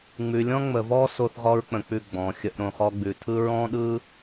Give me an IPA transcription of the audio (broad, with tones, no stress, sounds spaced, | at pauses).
ŋ͡m ʉ˨ lʲ ɔ̃˦ ŋ͡m ə˨ v ɔ˦ s o˦ θ ʁ ɔ˦ ɹ k͡p ə̃˨ k͡p ʉ˦˨ ɡ͡b ɔ̃˨ xʲ ə˦ ʔ ɾ õ˨ χ ɔ˦ ɡ͡b ʉ˨ tʰ ɯ˦ ɹ ɔ̃˦ ɗ ɯ˦